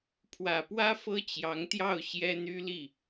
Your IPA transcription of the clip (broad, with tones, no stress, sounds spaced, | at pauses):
pʰ w ä˨˩ p w ä˥ f ɤ˥ t͡ɕ j ɑ˧˥ ŋ t̪ j ɑ˥˩ ʊ̯ ɕ j ɛ˥ n̪ y˥ l i˥˩